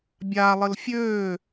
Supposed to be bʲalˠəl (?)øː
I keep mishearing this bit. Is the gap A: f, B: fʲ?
B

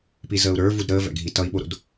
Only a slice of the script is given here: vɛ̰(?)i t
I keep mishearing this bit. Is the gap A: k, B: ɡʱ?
B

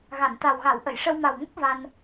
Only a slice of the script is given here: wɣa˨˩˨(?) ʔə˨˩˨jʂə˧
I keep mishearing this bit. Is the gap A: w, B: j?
A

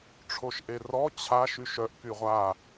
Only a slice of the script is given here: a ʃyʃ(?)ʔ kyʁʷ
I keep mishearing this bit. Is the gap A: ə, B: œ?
B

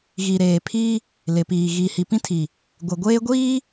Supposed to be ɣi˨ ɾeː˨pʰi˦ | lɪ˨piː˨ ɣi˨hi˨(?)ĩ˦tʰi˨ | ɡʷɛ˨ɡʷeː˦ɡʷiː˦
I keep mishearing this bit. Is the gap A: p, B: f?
A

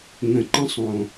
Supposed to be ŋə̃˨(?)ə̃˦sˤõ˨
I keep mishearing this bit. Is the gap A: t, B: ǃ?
B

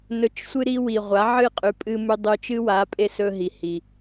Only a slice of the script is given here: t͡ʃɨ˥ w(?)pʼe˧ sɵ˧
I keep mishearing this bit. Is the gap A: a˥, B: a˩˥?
B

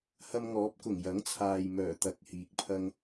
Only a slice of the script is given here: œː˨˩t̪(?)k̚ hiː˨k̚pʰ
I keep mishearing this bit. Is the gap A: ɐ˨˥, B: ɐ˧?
A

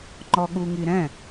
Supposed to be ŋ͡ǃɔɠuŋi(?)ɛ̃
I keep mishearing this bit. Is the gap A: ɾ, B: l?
A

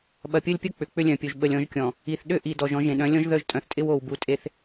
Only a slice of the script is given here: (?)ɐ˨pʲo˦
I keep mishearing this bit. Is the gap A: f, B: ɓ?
B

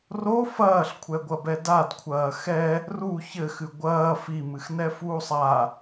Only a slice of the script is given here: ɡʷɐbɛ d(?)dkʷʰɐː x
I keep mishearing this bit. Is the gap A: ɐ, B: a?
B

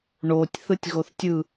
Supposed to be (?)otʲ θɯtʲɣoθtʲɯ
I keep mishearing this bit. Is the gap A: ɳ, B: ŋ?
A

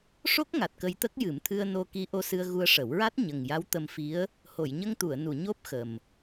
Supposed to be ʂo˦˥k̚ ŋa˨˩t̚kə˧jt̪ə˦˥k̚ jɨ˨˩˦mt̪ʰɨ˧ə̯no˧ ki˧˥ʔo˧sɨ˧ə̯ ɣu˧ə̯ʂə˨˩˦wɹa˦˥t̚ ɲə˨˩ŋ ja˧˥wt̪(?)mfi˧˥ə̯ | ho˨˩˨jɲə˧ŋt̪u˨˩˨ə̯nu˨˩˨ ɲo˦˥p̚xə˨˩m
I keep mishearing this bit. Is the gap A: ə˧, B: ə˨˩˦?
A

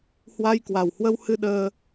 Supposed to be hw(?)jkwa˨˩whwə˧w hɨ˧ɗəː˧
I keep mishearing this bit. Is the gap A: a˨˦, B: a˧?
B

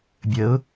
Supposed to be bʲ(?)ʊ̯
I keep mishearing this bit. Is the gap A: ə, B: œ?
A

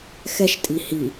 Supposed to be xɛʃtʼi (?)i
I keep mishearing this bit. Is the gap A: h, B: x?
A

